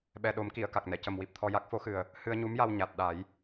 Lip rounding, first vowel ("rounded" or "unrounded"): unrounded